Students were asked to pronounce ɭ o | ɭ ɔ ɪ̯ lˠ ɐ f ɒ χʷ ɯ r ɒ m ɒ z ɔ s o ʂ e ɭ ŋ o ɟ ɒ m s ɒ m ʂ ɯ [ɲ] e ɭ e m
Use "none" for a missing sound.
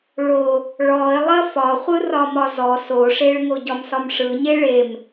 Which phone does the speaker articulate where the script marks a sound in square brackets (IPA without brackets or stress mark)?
ɲ